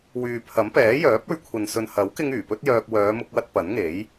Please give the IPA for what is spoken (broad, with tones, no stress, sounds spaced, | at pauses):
w yː˨ pʰ ɐ˨˥ m p ɛː˨˥ j œː˨˥ p̚ ɵ˧ ɥ kʷʰ ɐ˨ n s ɵ˨ n h ɐ˨˥ w k ɪ˧ ŋ yː˨˩ p ɵ˥ t̚ j œː˧ k̚ w œː˨˧ m ʊ˧ k̚ w ɐ˧ t̚ p ɐ˨˥ n ŋ e˨˥ j